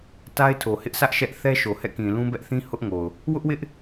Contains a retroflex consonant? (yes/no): no